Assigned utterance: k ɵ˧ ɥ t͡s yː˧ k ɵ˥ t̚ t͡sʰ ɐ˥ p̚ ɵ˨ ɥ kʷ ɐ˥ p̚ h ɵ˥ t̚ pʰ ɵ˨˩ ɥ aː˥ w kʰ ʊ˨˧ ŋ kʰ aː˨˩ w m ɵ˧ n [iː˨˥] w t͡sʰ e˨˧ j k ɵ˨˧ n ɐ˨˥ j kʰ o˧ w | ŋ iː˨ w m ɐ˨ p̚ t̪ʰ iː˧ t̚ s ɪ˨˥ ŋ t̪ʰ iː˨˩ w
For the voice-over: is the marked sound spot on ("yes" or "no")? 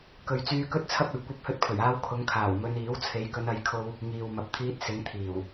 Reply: yes